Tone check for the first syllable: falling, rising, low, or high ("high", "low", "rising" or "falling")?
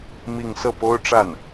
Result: falling